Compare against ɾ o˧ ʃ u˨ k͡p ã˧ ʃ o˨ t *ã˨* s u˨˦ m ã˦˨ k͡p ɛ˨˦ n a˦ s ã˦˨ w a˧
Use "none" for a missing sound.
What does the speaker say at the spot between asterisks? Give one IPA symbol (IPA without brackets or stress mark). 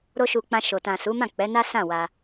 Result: ã˨